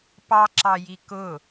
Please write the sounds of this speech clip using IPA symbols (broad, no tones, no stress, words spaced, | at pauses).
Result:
pɑǁɑji kʊ